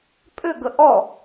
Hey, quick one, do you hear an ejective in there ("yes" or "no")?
yes